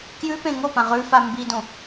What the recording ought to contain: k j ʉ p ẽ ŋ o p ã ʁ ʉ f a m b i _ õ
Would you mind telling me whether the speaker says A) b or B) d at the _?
B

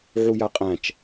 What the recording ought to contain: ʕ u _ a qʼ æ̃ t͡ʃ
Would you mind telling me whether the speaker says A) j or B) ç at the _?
A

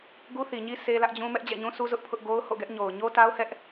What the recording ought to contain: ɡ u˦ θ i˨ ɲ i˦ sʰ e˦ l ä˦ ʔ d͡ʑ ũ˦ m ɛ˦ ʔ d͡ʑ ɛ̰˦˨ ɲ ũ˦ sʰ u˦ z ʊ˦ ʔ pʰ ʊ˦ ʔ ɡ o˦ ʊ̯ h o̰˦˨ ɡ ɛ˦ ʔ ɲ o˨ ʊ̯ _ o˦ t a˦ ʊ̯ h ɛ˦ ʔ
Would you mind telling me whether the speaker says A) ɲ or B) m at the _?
A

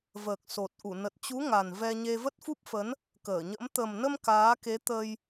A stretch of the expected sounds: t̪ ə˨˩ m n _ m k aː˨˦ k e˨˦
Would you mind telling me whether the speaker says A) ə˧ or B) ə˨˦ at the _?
A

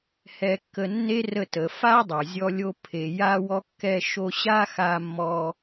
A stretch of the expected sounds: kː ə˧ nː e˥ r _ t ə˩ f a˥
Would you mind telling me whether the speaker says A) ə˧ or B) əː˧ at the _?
A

